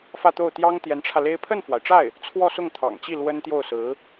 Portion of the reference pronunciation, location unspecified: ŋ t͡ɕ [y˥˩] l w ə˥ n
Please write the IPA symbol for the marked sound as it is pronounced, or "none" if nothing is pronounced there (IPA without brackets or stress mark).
i˥˩